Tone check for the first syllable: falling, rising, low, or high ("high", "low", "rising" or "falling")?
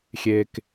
low